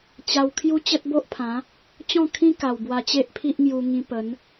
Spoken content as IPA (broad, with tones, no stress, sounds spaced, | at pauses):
t͡ɕ a˧ w kʰ j u˦ t͡ɕ ə˦ t̚ b o˦ ʔ pʰ ã˨˦ | t͡ɕ ɔ̃˥˧ kʰ ĩ˦ k a˨˩ w b w a˧ t͡ɕ e˦ ʔ pʰ i˦ ʔ ŋ j u˧ ŋ ĩ˧ p ə˨˦ n